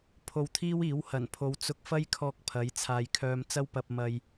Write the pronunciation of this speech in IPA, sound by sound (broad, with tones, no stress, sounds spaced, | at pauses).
pʰ o˧ w t̪ʰ iː˥ w iː˨˥ w h ɐ˨˩ n pʰ o˨˧ w t͡s ʊ˧ k̚ f ɐ˥ j kʰ ɔː˧ k̚ pʰ ɐ˨˥ j t͡sʰ aː˨ j kʰ œː˧ m t͡s ɐ˥ w p ɐ˨ p̚ m ɐ˨ j